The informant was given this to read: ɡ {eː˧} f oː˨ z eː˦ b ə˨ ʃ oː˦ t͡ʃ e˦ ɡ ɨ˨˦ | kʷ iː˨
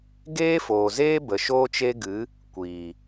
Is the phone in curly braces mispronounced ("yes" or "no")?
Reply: yes